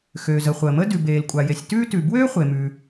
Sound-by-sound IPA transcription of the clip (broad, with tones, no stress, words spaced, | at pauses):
xøː˩zə˩ χʷəː˩mə˥ dʉ˩beː˩l kʷʼa˩je˩sʲtʉː˥tʉ˩ bwøː˥χʷe˩mʉ˩